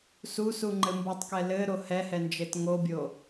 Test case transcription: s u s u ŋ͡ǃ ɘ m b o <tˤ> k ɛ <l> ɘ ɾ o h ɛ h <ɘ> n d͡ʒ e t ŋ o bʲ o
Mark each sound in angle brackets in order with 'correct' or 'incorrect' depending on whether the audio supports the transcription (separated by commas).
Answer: correct, correct, incorrect